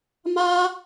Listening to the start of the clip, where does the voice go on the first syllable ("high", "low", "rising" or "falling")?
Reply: high